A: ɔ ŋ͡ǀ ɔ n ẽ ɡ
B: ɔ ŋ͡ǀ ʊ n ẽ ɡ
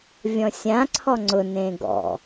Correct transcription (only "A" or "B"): B